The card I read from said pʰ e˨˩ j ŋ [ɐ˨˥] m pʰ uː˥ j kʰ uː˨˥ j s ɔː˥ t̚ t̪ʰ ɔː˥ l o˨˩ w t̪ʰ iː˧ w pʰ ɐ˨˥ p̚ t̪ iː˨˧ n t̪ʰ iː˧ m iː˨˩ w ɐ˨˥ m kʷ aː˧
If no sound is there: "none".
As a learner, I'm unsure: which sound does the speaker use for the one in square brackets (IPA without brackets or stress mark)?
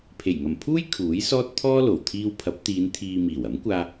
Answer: ɐ˨˩